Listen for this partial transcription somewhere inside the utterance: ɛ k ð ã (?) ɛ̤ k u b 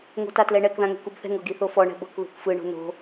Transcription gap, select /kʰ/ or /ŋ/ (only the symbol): ŋ